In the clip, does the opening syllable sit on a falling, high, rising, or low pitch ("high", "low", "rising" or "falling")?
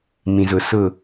low